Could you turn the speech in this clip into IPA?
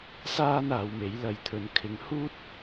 s aː˥ n aː˨˧ w m e˨˥ j l ɐ˧ j t̪ʰ ɵ˧ n kʰ ɪ˨˧ ŋ h uː˥ t̚

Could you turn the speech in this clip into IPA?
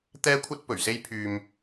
t̪ ɛː˥ kʷʰ ɐ˥ t̚ p ɵ˨˩ ɥ s e˥ j pʰ yː˧ m

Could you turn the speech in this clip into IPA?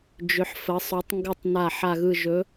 d͡ʒ ʏ˩˧ ħ f ə˩˧ sˤ ɵ˩˧ tˤ ŋ ɡ ɯ˨˩ tˤ n a˨˩ ħ a˨˩ ɣ ɯ˨˩ ʒ ɵ˩˧

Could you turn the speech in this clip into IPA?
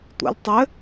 tʷ ɛ̰ lʲ tˤ ɘ

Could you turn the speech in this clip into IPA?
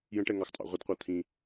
j ə̃ ʈ ɛ ŋ ɑ x tʼ ɑ̰ ʁʷ ə d qʷ ɑ t̪ʰ ĩ

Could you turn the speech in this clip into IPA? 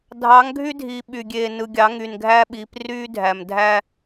dʱ ɑ˨˦ ŋ ɡʱ y˦ dʱ iː˨ ɓ y˨ ɡʲ eː˨ n ɯ˨ ɡʲ ɑ˨˦ ŋ y˨ n ɡʱ æ˦ ɓ iː˨˦ p r yː˦ dʱ æ˨ m dʱ æ˦

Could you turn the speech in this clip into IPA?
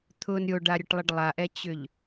t̪ʰ ʊ n ɾʲ o ɖ a ɾʲ ʊ ʈ lˠ ə ɖ lˠ a ʔ ɛ t͡ɕ ʏ ʎ

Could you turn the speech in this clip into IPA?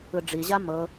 ɯ ɖ͡ʐ i ʑ a m ɤ

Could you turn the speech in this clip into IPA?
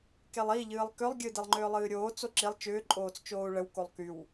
k e lˠ i ʎ ɨː lˠ k ʏ lˠ ɡʲ ɨ d e lˠ ŋ͡ǃ ʏː lˠ ɨː ɾʲ oː t͡s o ǁ i lˠ t͡ʃ ʏː ǃʼ oː t͡s t͡ʃ oː u̯ ɭ ə w k o lˠ k y w

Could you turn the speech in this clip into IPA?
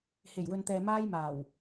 h e˨˩ j w ɵ˨ n t̪ ɛː˨ m aː˧ j m aː˨˩ w

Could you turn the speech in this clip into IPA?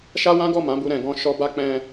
ʃ a˦ w ã˦ ɡ ɔ˦˨ m ã˨˦ b u˧ ɾ ɛ̃˨ ɡ ɔ̃˧ ʃ ɔ˧ b a˦ k͡p ɛ̃˧

